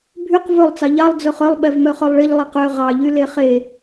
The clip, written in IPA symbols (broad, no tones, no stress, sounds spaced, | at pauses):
bʱ y q v ɵ lˠ t͡s ɑ ʎ ɑ lˠ d͡z ɵ χ œ lˠ ɓ ɛ v m œ χ œ lˠ ɭ i ʎ lˠ i q ø ʁ ɑ ʎ y l e χ e